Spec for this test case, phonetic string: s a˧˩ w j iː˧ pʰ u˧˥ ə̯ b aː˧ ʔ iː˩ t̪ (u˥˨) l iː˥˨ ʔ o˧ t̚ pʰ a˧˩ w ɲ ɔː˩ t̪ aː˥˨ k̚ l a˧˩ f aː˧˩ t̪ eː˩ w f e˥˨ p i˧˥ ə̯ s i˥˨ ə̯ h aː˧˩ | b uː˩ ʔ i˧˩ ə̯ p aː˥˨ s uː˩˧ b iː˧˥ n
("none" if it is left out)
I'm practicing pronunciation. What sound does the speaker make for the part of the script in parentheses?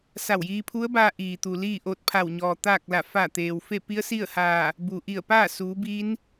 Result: u˩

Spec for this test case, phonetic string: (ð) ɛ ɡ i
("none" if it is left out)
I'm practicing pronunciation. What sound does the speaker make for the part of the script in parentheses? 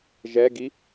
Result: ʒ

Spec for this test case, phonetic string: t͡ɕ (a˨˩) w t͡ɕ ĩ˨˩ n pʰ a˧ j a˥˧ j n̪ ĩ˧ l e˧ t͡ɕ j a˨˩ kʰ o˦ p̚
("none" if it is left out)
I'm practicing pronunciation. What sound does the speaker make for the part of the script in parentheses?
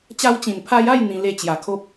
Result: a˧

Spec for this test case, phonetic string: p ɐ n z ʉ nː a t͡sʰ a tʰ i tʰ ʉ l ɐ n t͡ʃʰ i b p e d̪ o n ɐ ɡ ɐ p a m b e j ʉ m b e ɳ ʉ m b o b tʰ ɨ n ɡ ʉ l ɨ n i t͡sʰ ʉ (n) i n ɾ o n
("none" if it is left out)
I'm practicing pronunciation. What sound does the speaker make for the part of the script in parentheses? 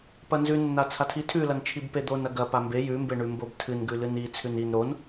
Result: n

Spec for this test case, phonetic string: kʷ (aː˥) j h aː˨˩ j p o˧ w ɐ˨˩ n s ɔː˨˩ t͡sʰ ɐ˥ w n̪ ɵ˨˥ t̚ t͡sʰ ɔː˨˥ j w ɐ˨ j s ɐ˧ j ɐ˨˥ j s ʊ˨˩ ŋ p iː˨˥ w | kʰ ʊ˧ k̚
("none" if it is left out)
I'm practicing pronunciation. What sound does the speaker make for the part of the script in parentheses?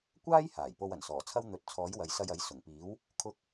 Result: aː˥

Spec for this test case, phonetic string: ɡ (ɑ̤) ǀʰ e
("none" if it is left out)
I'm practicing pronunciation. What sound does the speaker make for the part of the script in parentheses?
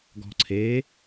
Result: ɔ̤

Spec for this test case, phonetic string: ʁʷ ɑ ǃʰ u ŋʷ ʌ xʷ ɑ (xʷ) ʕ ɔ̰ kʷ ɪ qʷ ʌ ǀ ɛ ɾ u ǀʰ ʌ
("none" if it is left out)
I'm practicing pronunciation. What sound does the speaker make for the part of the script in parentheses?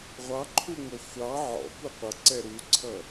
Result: none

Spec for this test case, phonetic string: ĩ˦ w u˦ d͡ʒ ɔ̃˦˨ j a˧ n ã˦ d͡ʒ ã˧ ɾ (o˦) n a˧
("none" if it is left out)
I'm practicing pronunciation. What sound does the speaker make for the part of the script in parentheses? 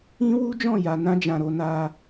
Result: o˧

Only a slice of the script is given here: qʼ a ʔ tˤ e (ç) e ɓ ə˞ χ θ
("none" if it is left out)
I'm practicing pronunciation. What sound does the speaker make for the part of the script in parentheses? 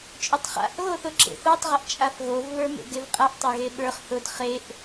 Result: ɣ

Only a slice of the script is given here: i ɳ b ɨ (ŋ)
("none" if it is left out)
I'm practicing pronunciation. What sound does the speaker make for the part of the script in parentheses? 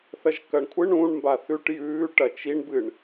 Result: ɳ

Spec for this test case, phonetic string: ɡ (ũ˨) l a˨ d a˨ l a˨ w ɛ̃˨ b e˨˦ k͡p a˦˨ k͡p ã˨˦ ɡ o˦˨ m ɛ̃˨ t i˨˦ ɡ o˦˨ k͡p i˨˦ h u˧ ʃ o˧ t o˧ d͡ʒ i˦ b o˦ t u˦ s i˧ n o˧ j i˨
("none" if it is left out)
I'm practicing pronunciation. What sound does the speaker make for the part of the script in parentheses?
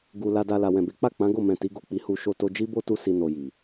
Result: u˨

